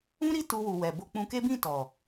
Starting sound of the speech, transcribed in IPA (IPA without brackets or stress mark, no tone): ũ